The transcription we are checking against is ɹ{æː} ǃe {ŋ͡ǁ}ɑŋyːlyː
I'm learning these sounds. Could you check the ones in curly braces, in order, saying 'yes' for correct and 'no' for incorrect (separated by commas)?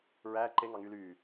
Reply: yes, no